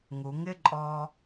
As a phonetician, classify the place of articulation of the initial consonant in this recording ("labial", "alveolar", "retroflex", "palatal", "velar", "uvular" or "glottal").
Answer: velar